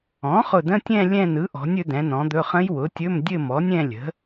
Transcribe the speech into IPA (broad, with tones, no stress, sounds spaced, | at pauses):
ɔ̃˩˥ χ ʊ˧˩ d ə̃˧˥˧ tʲ ɛ̃˥˧ lʲ ɛ̃˥˧ n ɯ˩˥ ʔ ɔ̤˩˥ nʲ ɵ˩˥ d ɛ̃˩˥ n ɔ̃˩˥ d̪ ɵ˧˥˧ χ ə̃˦˥ j w ʊ˩˥ tʲ ɵ˧˥˧ m dʲ ɘ˥˧ m ɔ˩˥ nʲ ɛ̃˥˧ lʲ ə̤˩˥